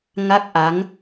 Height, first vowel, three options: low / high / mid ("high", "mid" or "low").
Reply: low